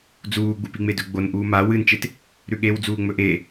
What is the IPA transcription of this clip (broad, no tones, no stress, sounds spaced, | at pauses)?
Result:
d͡z uː ɡ͡b u p i ŋ͡m e d ɵ ɡ͡b o n ʔ uː m a w ɨ n t͡ʃ e t | ɾ ʉ ɠ e w d͡z uː ŋ͡m ɵ ʔ e